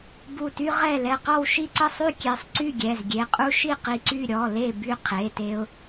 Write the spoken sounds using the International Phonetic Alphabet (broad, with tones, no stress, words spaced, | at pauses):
bu˧˩ty˦ ʁɛ˥˨ lɛ˧˩qɔ˥˨wʃi˥˨ ǀə˥˨sˤy˥˨ kʲe˧˩sˤǀy˥˨ ɡʲɛ˩˧˩zɡʲe˩˧˩ qʼu˦ʃi˥˨ qi˧˩ǀy˥˨ ɾʲɔ˩˧˩le˥˨ by˥˨qʰe˩˧˩te˦ʊ̯